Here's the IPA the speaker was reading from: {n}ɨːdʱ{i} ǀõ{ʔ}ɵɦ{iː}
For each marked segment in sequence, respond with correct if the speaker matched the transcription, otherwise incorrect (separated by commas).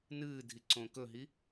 correct, correct, incorrect, incorrect